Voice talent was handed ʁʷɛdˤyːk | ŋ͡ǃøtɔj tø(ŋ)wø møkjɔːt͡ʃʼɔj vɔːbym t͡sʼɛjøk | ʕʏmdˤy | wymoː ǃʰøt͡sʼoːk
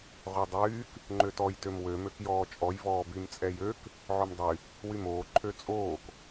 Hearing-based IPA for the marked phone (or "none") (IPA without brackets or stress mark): m